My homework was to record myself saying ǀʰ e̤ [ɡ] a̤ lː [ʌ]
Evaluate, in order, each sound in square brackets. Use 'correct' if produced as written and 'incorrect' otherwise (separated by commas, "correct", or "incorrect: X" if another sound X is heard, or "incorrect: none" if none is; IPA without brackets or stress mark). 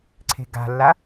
correct, incorrect: a